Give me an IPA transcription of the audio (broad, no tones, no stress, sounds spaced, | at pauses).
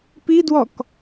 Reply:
p i d w ɔ k